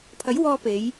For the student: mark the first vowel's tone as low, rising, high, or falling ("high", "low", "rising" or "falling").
rising